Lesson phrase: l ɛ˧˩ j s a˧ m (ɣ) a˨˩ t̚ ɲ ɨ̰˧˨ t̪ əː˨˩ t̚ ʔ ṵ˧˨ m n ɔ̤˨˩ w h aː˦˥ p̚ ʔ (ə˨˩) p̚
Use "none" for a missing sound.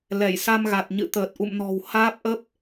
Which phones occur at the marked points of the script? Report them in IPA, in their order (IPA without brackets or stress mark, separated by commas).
ɣ, ə˦˥